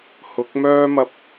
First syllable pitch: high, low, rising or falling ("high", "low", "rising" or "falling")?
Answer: rising